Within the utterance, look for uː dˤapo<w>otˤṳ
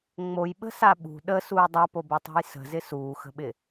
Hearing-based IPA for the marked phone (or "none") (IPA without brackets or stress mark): b